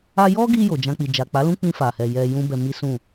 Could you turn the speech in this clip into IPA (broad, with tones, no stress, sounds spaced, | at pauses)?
a˧ j ɔ˦ ɡ i˧ j o˨ d͡ʒ ã˧ k͡p i˨ d͡ʒ a˨ k͡p a˨˦ l ũ˦ k͡p ĩ˧ f a˨ h ɛ˨ j ɛ˧ j ũ˦ b ɛ˧ m i˦ s ũ˦˨